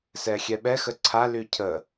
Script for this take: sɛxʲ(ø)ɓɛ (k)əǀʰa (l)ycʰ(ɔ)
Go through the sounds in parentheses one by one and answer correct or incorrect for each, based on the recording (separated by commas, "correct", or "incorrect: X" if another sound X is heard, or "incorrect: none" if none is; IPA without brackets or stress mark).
incorrect: ɛ, incorrect: x, correct, incorrect: ə